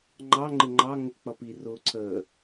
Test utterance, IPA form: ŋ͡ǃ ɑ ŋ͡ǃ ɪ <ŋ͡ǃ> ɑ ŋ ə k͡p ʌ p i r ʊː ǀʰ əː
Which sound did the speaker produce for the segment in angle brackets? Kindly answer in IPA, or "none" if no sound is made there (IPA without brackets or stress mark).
ŋ͡ǃ